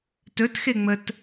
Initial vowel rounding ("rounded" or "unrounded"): rounded